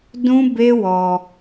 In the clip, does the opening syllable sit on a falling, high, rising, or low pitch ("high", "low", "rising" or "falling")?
high